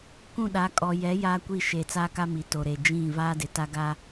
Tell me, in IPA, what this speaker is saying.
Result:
k ũ˦˨ ɗ a˨˦ kʼ ɔ˨ j ɛ˨˦ j aː˦ kʷ i˦˨ ʃ eː˨ t͡s aː˦ k a˦ m i˨ t o˨ ɾ e˨ d͡ʒ ĩ˦˨ v aː˦ d ɪ˨ t a˦ ɡ a˦

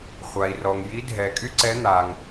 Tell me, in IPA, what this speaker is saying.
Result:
χʷ a˩ i̯ r ɔ˩ ŋ j i˧˥ dʱ ɛ˩ kʼ y˥ ǀ ɛ˧˥ n̪ aː˩ ŋ

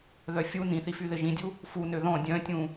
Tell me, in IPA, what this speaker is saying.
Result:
ð œ fʲ u n ĩ θ i f y ð ɪ ʒ ĩ dʲ u | f u n ø ð ɔ̃ dʲ œ̃ tʲ ũ

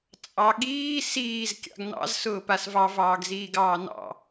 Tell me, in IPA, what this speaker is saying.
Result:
t͡sʼ ɑ ɠ iː s iː z kʲ ɑ̰ ɡ n ɑ̰ z s ʊː p a s v ɑ v ɑː ɡ z iː ɡ ɑː n ɑ̰

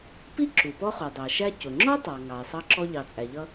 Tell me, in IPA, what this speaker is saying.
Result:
p i˥ ǁ u˩ p ɔ˥ χ u˩ dˤ æ˩ ʃ æ˥ c ʊ˩ ŋ͡ǁ ɔ˥ tˤ ɑ˩ ŋ ɑ˩ ɪ̯ sˤ ɑ˥ ǁ ɔ˥ ʎ ɑ˩ t͡sʼ æ˩ ʎ ʌ˥

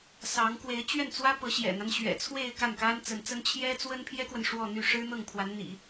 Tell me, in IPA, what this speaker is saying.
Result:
s ɑ˧˥ ŋ k w e˧˥ ɪ̯ t͡ɕ ɥ ɛ˥˩ n t͡s w ä˥ p ɤ˧˥ ɕ j ɛ̰˨˩ n̪ a˦ n ɕ ɥ ɛ̰˨˩ t͡sʰ w e˥˧ ɪ̯ k a˥˩ n k a˥ n t͡s ə˧˥ n t͡s ə˥ n t͡ɕʰ j ɛ˥ t͡s w ə˥ n pʰ j ɛ˥ k w ə˨ n ʂ w ɔ˥˧ n̪ y˥˩ ʂ ɻ̩˥ n̪ ɤ˥˩ ŋ pʰ w a˧˥ n n̪ ḭ˨˩˦

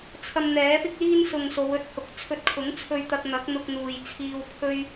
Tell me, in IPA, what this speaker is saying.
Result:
t͡sʰ ɐ˧ m n̪ ɛː˨˥ p ɪ˥ k̚ l iː˥ n s ʊ˨ ŋ s o˨˧ w ɵ˥ t̚ h ʊ˨ k̚ t͡sʰ ɵ˧ t̚ kʰ ʊ˨˥ ŋ t͡sʰ ɵ˧ ɥ t̪ ɐ˧ k̚ n̪ ɐ˨˥ k̚ n̪ ʊ˧ k̚ n̪ uː˨ j t͡sʰ iː˧ w pʰ ɵ˥ ɥ

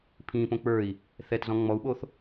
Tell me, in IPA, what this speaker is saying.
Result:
pʰ ĩ p õ k͡p ə˞ i̯ | θ ɛ t z ɔ̃ ŋ͡m ɔ u̯ ɓ o θ

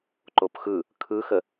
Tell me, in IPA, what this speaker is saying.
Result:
ǃ o p x ɯ | kʰ ɯ x ə

